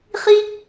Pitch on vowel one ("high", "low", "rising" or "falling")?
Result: high